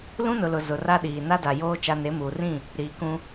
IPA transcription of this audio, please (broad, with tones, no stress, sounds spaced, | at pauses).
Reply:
l ũ˦ n ʊ˨ l ʊ˨ z ʊ˨ r a˦ ɗ iː˨ n a˦ d a˨ j oː˦ t͡ʃ a˦ n e˨˦ m uː˨ r ĩ˦˨ | ɾ iː˨ k ũ˦